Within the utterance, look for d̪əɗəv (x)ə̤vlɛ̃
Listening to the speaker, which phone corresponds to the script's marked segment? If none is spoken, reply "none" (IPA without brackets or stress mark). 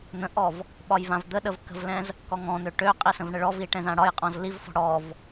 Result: k